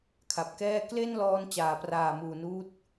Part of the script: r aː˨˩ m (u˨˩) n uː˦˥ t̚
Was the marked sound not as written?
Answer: yes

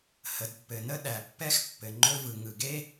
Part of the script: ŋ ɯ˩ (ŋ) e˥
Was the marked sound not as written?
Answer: yes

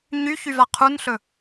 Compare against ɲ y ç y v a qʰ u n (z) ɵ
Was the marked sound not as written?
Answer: yes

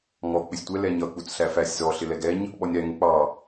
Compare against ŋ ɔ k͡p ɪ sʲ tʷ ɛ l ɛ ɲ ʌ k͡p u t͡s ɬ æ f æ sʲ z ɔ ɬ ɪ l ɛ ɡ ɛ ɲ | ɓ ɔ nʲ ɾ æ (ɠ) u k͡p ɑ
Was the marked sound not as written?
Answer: yes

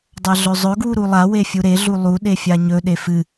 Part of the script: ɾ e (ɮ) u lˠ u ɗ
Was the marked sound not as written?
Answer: no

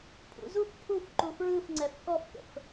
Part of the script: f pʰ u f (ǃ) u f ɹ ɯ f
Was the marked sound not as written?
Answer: no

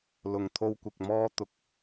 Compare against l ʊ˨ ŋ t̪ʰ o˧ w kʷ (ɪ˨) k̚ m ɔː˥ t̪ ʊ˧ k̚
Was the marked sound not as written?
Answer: no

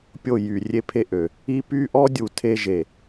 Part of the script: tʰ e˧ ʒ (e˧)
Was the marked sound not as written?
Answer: yes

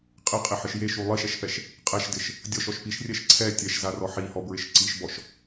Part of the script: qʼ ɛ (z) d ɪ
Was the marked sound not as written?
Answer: yes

